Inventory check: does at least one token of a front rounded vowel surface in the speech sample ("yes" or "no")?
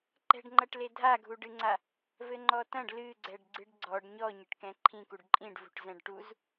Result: no